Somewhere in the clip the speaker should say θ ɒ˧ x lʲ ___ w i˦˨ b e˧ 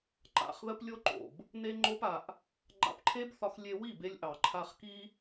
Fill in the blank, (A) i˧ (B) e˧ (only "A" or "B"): B